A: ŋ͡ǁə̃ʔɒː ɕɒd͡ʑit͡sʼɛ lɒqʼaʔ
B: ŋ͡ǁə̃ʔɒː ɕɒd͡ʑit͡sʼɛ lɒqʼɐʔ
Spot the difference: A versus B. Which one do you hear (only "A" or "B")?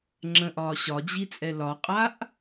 A